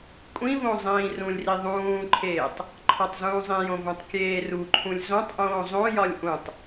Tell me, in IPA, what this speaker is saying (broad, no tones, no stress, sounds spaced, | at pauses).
kʷʼ ĩ v õ zˤ ĩː r ũ lʲ r i ðˤ ũː ǃʰ eː tˤ | ǃʰ ɒ tˤ z ũː zˤ ĩ j õ v õ tˤ kʲ eː r u ǃʰ ũ lʲ z õ tˤ ʔ õː zˤ õ j ɒ lʲ ʔ ũ tˤ